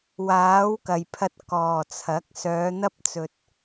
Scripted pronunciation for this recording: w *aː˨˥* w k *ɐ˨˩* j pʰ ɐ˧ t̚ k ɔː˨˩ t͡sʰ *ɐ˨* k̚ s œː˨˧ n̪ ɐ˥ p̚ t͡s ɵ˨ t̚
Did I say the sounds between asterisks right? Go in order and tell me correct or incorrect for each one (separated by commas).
correct, correct, incorrect